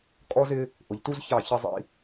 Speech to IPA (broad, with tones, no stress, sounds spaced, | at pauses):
kʼ ɔ˦ z ɪ˦ | ʔ ʊ˨ ʎ t u˦ z ç ɑ˦˨ ç ɪ˦ zˤ ḭ˦